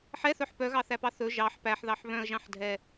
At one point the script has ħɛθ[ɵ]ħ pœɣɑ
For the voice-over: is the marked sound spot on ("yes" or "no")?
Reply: no